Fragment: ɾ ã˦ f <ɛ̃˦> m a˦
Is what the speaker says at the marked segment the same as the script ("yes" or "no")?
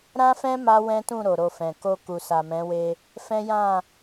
yes